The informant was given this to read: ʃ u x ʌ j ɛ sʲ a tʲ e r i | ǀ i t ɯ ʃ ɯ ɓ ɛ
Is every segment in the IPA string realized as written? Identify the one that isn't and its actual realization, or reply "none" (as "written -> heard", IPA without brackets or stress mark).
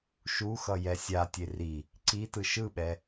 none